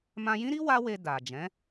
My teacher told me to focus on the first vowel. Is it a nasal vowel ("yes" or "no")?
yes